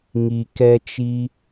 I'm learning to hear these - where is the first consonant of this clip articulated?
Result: velum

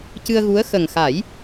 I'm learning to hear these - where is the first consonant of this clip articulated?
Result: palate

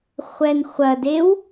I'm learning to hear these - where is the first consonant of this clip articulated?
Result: uvula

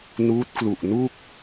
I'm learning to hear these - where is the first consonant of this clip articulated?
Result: tongue tip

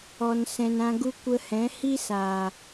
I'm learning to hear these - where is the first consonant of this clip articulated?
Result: tongue tip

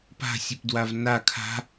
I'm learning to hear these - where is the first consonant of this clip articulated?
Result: lips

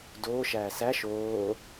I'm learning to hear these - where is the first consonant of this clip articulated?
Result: tongue tip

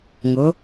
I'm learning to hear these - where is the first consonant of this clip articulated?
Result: velum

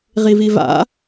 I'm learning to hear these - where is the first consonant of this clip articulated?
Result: uvula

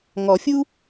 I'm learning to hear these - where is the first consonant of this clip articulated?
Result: velum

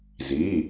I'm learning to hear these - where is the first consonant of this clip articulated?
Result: tongue tip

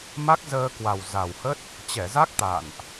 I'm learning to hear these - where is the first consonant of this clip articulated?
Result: lips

